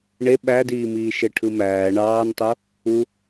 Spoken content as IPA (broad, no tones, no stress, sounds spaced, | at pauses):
ɳ e ɓ æ d iː m iː ʃ e ʈʰ ɯ m æː ɳ ɑː n tˤ o | u